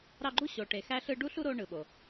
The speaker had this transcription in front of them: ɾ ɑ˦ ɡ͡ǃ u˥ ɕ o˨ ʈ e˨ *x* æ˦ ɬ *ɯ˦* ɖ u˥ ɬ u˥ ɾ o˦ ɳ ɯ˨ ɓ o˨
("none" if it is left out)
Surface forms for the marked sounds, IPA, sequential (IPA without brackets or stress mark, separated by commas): x, ɯ˦